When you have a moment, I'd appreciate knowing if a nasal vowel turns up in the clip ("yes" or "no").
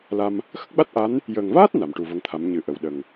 no